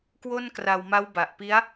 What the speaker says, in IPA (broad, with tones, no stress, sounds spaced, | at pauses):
k w o˥˩ n k r a˧ w m a˦˥ w b a˨˩ ʔ p i˦˥ a̯